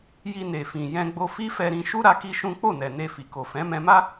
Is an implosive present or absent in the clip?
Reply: absent